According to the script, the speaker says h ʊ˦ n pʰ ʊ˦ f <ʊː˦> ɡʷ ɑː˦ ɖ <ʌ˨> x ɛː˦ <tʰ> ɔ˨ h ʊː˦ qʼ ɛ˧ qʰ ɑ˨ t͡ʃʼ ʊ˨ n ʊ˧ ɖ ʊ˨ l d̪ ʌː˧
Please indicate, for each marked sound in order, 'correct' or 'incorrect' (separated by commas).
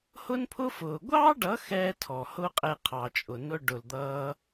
incorrect, incorrect, correct